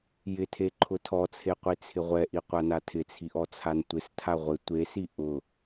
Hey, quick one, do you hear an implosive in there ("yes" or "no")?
no